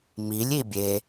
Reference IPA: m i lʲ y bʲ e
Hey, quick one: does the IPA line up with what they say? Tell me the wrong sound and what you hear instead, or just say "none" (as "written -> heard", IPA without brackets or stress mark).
y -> i